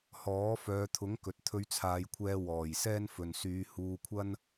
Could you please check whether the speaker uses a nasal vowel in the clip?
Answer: no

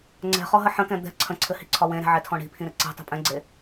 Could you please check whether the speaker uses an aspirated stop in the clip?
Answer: yes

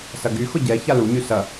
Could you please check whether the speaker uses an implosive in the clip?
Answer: no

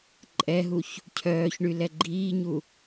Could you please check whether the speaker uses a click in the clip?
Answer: yes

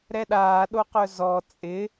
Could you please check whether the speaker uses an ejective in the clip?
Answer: yes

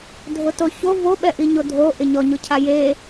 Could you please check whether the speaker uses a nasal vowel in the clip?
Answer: no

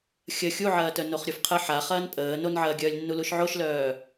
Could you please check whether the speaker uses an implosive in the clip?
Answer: no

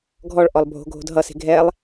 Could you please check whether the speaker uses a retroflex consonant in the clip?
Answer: yes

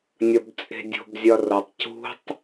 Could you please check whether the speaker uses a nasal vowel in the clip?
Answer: no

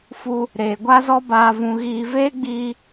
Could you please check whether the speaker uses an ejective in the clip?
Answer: no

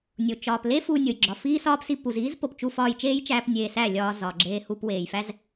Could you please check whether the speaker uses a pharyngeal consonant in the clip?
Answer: no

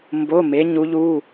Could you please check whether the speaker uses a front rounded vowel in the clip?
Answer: no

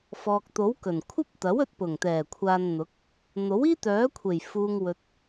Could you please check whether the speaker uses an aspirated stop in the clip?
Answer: yes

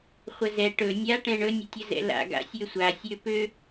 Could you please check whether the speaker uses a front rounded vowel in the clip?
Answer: yes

